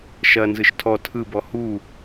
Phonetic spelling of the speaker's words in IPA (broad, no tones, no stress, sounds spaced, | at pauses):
ʃ ɐ n z ɯ ʃ tʰ ɔ tʰ ɯ b ɔ h u